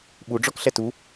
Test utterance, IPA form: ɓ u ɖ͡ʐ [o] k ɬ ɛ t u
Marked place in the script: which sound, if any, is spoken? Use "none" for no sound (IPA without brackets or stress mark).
ɔ